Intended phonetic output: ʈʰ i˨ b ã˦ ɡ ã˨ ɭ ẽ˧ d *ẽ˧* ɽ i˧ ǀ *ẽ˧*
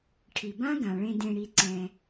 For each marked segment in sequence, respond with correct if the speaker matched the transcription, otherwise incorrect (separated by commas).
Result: correct, incorrect